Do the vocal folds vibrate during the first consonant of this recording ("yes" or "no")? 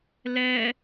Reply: yes